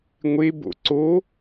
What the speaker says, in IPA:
ŋʷ e b o̰ ǀ o

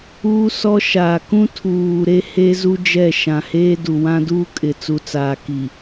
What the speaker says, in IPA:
uː˦ s ɔ˦ ʃ aː˨ k ũ˦ tʰ uː˨ ɾ e˦ h e˦ z u˦ d͡ʒ ɛ˦˨ ʃ ã˨ h eː˦ d u˨ w ã˦ d uː˦ kʼ ɪ˨ t͡s u˨ t͡s aː˨ k i˨

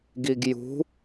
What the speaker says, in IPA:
ɡ i ɡ j ṳ

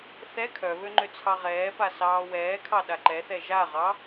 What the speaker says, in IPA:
θ ɛ kʰ œ β ø ŋ͡ǃ ø t͡sʰ ɑ ʁ ɛː p a s ɑː w ɛː kʰ ɑ ɗ a ǃ ɛ θ ɛ ʒ a ʁ ɑ

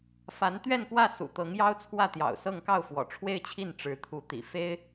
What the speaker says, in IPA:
f a˧˥ n t̪ ɥ ɛ˥˧ n k w ä˥˩ s ṵ˨˩ t̪ ɤ˧˥ ŋ j ɑ˥ ʊ̯ t͡sʰ w ä˥˩ t̪ j ɑ̰˨˩ ʊ̯ s ɤ˥˧ ŋ k ɑ˥˩ ʊ̯ f w ɔ̰˨˩ ʈ͡ʂʰ w e˥˧ ɪ̯ t͡ɕʰ i˥˩ n ʈ͡ʂ ɻ̩˧˥ t̪ʰ u˧˥ t̪ ḭ˨˩ f e˥ ɪ̯

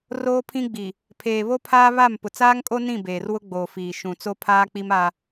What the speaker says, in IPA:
r oː˦ pʰ ĩ˦ ɡ͡b i˨ | pʰ eː˨ β o˦ pʰ aː˦ β a˦˨ m p ʊ˨ t͡s aː˦ ŋ kʼ o˦ n ĩ˦˨ b eː˨ r w ʊ˦ ɡ͡b oː˨ f iː˨ ʃ ũ˨ t͡s o˦ pʰ aː˦ k͡p i˦ m a˦

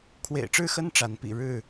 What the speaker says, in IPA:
kʰ w ḛ˨˩ ɪ̯ ʈ͡ʂ ɻ̩˥˨ x ə˦ n ʈ͡ʂ a˨˦ n p ḭ˨˩ ɻ ɻ̩˥˨

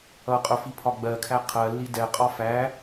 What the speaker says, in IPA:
ʌ qʼ ʊ f i pʰ ɒ ɡ͡b ɜ kʰ æ qʰ ɜ lː i d ɛ qʼ ɒ f æ

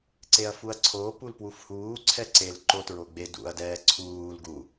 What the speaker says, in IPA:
ǀ e ɐ̯ f u ɐ̯ ǀʰ o p u l p w u f h uː ǀʰ ɛ ǀ e l ǃ o t ɹ o ɡ͡b e d ṵ ɐ̯ d ɛː ǀʰ uː l ɡ u

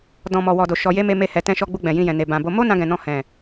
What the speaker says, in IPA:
d ɔ̃˨ m ɔ˨ w ɔ˨ d o˨ ʃ ɔ˨ j e˧ m e˧ m e˧ h ɛ˨ t ɛ̃˧ ʃ ɔ˧ ɡ͡b u˧ ɡ͡b ɛ̃˨ j ĩ˧ j ɛ̃˨ n e˨ b ã˨ b o˧ m o˦ n ã˧ ɡ ɛ̃˨ n ɔ̃˧ h ɛ̃˨

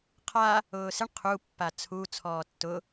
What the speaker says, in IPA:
qʰ a | ʊː s ɪ ɳ qʰ u pː a t͡sʰ u t͡sʰ ɔː tː ʊ

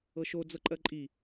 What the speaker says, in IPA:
ɤ ʃ o d͡z ɤ ǃʼ ɜ ǃʼ i

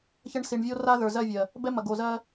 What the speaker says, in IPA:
ç ɐ˦ ɳ s i˨ ɳ vʲ o˦ r a˦ ð ə˞˨ z ɜ˦˨ vʲ ɜ˨ | b ɛ˦ m ɐ˨ ɡ o˨ z ɜ˦

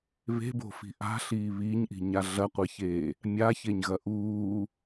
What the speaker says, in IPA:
β e̤ b o̤ f i̤ ʔ a̤ ɬ iː β iː ɲ ʔ i̤ ɲ a ɮ ɐ qʷ e ç eː | mʲ a ç e ɲ ɣ ɐ ʔ uː

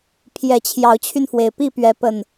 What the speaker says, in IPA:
pʰ j ɛ˨˩ t͡ɕʰ j ɑ˨˦ ʊ̯ t͡ɕʰ y˧ n f w e˩ ɪ̯ p i˥˨ p ɥ ɛ˨˦ p ə˨˩ n

